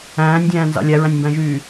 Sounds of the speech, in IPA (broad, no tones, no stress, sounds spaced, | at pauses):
æ̃ː nʲ dʲ æ̃ː n z ɑ̰ lʲ æ ɹ æ̃ nʲ m b æ̃ ʒ yː